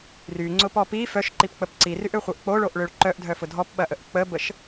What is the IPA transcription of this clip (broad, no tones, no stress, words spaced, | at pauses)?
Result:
ryŋ͡ǀʊpɔ pi fœʃǃipk͡pəp ǀiryʔøχʷœʔ k͡poɭoʔɭøɭ ǃœʔdʱœfʊ dʱɔpɓɐʔəʔ k͡pəbəʃ